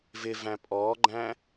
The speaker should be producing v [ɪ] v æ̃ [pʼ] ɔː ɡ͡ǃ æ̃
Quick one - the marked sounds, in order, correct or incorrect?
correct, correct

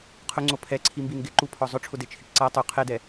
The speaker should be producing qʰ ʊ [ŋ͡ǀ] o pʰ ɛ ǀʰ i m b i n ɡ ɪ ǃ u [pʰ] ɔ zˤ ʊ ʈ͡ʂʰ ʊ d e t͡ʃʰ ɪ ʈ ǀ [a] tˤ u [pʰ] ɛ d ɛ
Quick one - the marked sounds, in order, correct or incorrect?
correct, correct, correct, incorrect: qʰ

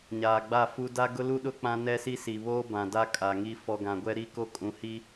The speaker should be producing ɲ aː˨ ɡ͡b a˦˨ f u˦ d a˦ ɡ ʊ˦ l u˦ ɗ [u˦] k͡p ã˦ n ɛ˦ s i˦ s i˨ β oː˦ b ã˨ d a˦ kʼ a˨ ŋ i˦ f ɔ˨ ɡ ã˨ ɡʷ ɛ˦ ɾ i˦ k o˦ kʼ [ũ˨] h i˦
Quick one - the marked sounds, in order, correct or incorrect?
incorrect: ʊ˦, correct

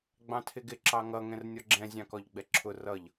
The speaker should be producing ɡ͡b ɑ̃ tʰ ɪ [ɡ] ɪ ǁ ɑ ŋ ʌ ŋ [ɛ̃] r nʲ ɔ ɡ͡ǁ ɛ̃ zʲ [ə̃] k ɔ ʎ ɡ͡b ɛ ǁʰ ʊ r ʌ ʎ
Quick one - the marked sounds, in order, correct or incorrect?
correct, correct, incorrect: ɑ̃

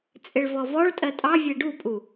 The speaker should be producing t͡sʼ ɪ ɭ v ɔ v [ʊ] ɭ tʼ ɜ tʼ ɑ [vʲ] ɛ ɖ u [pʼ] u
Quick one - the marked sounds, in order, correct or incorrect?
incorrect: ɔ, correct, correct

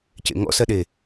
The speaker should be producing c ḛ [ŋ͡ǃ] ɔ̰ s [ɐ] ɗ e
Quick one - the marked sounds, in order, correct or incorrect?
incorrect: ŋ, correct

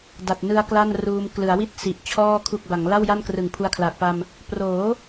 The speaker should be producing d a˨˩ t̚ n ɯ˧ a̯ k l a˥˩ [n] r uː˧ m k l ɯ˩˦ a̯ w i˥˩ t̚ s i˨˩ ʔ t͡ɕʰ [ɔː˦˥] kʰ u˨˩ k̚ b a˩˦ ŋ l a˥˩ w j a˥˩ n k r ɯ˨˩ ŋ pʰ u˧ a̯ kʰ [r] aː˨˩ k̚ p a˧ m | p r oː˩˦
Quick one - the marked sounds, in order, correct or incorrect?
correct, incorrect: ɔː˥˩, incorrect: l

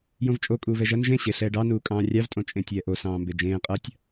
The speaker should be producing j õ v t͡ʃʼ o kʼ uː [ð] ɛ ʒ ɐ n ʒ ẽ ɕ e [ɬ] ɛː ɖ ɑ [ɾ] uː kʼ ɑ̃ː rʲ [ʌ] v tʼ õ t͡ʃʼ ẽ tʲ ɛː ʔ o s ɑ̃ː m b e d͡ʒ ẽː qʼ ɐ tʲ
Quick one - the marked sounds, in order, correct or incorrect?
incorrect: v, correct, incorrect: n, incorrect: ɑ

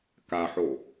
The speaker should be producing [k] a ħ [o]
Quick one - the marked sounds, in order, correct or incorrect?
correct, correct

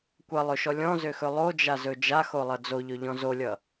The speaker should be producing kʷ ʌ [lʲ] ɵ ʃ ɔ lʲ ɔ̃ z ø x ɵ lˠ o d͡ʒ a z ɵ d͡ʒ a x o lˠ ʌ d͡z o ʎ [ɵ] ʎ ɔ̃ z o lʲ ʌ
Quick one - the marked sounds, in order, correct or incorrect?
incorrect: lˠ, correct

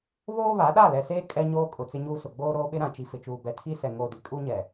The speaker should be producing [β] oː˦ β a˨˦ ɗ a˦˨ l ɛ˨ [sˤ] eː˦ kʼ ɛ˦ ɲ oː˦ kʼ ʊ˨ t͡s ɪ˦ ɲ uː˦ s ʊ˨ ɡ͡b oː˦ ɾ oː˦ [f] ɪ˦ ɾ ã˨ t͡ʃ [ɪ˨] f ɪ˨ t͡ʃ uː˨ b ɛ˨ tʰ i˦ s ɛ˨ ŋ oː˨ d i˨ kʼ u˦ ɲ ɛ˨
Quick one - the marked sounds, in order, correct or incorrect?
correct, incorrect: s, incorrect: ɓ, incorrect: i˨

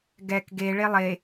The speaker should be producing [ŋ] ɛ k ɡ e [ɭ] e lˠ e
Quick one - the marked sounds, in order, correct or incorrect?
incorrect: ɡ, correct

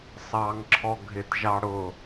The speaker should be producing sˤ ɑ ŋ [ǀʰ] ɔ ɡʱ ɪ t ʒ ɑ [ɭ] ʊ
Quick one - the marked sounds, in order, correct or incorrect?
incorrect: ǁʰ, incorrect: ɽ

